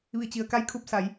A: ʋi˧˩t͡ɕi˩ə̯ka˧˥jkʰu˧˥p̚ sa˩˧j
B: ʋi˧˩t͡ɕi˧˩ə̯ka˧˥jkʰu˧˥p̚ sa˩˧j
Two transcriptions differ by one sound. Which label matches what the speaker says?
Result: A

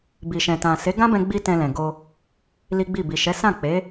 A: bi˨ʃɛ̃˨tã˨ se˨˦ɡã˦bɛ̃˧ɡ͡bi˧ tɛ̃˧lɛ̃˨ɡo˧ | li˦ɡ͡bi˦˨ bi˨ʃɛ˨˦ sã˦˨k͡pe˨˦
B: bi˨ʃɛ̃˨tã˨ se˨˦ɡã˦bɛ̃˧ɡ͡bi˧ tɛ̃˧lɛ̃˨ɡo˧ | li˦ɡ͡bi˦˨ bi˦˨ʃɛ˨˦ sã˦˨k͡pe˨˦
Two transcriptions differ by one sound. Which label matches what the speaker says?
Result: A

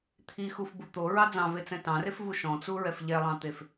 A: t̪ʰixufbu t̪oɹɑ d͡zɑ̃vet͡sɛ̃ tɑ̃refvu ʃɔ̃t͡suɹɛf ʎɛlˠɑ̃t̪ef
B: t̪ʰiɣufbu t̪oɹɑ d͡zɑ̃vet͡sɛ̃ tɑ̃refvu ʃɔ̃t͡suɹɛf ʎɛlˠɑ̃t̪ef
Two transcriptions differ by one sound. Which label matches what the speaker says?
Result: A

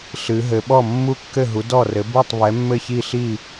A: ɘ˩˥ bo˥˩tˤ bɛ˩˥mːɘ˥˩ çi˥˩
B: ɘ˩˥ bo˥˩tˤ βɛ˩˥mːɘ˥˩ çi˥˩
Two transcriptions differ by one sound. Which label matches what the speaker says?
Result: B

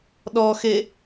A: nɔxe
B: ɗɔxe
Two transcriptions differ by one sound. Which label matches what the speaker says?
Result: B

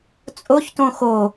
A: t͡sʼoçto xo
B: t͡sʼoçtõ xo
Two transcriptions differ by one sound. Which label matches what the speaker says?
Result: B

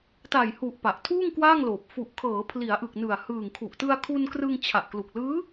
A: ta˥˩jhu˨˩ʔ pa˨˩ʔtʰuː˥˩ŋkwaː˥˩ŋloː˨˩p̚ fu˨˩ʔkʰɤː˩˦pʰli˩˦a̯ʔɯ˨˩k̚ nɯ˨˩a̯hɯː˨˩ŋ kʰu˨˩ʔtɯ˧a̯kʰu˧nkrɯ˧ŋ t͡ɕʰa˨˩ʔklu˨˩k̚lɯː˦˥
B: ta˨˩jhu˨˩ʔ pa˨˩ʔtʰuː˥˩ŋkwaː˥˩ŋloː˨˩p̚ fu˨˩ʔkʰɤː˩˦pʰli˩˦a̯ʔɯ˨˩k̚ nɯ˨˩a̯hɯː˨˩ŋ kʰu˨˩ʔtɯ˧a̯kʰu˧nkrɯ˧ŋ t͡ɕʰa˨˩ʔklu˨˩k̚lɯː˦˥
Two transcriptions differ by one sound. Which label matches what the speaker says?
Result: B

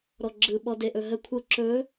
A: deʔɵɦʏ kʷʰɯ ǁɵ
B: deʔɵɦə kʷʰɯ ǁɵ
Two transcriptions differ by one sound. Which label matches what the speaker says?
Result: B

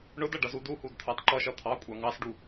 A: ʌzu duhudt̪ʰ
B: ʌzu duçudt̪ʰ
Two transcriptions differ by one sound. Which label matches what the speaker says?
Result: A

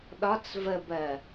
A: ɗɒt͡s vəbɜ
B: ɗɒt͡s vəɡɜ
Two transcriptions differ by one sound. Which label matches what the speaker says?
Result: A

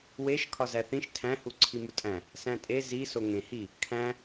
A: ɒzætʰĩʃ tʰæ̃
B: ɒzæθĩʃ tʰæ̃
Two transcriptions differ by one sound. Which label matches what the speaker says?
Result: B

